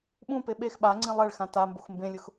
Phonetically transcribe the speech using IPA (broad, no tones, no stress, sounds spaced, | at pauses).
ɓ ũ p e ɓ e x ɓ a ŋ͡ǀ ĩ lˠ ɛ ɭ x ã t a m b o x m b ẽ lʲ ʊ x